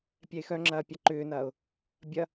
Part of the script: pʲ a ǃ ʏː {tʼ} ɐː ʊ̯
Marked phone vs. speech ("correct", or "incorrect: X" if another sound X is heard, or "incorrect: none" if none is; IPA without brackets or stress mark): incorrect: n